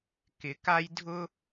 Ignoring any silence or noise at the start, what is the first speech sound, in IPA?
k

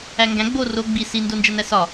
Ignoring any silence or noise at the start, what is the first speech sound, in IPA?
æ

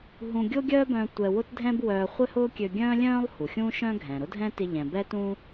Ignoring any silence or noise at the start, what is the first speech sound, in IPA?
ɦ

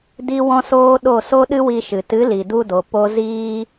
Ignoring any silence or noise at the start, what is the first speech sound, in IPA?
d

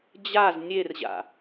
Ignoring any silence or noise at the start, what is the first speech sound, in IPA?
d͡ʑ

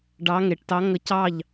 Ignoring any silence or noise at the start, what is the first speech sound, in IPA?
ɖ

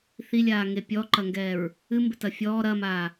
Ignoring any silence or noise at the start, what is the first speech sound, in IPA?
θ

